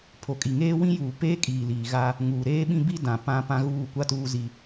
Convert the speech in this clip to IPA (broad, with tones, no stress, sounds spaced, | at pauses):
pʰ o˨ kʼ i˨ ŋ eː˦ w ĩ˦ j uː˨ p eː˦ kʼ iː˨ l iː˨ ɣ a˦ | ŋ uː˨ ɾ eː˦ ɓ ĩ˦ b i˦ d ã˨ p ã˦ p ã˦ ɣ uː˦˨ kʷ a˦ t uː˦ z i˦